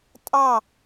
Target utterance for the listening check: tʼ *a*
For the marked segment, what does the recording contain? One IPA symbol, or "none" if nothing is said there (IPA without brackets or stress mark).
ɑ